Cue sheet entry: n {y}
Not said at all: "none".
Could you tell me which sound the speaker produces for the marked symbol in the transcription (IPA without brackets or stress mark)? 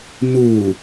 u